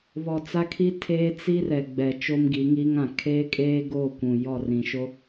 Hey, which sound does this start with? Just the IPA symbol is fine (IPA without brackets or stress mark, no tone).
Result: β